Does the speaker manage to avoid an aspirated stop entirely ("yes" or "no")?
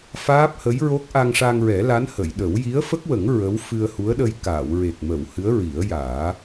yes